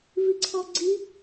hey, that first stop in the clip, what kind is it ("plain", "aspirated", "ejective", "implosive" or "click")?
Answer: click